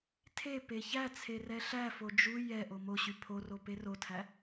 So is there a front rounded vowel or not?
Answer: yes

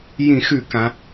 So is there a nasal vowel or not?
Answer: yes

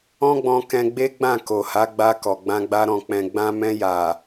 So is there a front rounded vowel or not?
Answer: no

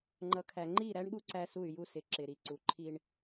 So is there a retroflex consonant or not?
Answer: yes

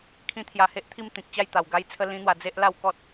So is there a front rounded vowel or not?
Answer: no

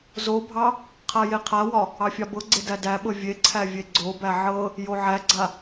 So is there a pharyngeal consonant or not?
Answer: yes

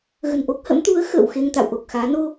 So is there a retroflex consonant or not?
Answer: no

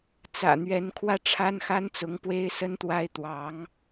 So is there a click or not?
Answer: no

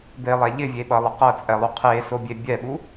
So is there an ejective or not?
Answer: yes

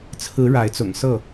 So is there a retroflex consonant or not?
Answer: yes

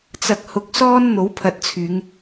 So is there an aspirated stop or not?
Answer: yes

